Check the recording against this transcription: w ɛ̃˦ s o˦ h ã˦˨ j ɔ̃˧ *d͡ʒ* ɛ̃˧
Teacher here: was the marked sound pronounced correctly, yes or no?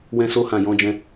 yes